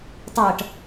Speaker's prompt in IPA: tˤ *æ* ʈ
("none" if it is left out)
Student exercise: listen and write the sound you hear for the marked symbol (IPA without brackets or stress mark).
ɜ